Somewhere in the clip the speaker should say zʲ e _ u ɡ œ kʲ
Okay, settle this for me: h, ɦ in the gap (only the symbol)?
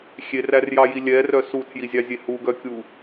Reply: h